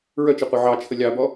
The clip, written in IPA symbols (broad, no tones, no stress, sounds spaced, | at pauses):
ɹ œ t͡ʃ ə qʷ œ ʕ ɑ t͡ʃʰ ə lʲ ɑ b ɔ